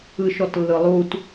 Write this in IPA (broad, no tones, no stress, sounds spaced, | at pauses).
ɯ ʃ ɔ t lː ɯ lˠ u t